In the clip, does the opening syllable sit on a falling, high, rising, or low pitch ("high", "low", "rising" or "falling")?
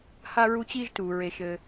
high